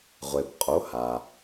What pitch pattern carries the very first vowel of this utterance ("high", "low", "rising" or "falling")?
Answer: low